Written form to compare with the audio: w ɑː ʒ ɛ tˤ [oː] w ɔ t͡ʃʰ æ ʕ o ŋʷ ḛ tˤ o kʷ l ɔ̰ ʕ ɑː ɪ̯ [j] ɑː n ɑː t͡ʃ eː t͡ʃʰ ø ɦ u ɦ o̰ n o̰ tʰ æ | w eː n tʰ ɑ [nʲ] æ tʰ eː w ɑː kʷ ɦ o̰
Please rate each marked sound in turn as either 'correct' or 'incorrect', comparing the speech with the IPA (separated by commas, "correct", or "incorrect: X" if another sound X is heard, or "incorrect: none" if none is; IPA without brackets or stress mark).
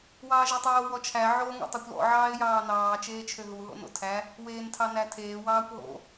correct, correct, incorrect: n